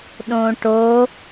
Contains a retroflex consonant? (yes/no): yes